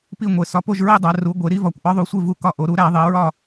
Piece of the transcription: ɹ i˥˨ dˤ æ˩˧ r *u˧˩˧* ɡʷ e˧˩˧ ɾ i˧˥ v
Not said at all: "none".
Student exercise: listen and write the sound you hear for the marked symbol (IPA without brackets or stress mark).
u˩˧